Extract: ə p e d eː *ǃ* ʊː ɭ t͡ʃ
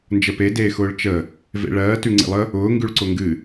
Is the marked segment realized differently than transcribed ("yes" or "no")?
yes